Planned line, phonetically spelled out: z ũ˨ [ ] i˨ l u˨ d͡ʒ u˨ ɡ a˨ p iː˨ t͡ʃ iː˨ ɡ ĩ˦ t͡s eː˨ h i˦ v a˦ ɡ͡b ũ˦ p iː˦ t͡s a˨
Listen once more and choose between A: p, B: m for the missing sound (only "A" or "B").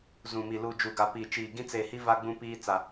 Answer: B